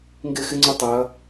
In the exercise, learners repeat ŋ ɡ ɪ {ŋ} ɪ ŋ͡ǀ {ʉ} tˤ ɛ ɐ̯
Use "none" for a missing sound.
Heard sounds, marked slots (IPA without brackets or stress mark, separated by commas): x, u